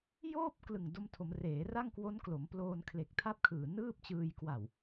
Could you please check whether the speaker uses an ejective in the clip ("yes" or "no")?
no